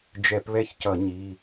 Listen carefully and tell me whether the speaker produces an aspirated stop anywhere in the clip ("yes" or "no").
no